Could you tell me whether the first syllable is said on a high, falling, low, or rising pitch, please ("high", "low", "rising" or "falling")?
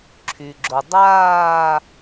low